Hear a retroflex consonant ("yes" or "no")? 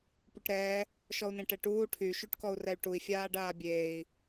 yes